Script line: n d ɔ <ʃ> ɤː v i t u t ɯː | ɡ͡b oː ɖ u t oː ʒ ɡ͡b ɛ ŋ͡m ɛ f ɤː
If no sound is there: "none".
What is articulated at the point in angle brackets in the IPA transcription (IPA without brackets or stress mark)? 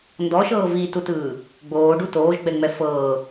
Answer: ʃ